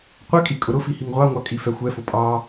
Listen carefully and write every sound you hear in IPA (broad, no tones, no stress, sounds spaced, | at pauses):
qʷ ɛ kʼ i kʼ ʊ ɾ ʊ f i h i ŋ ʁʷ ɑ ŋʷ ɑ kʼ i f ɛ xʷ ɛ f ʊ pʼ ɑ